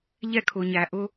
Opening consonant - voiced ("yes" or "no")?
yes